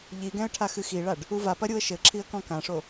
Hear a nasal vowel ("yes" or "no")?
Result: yes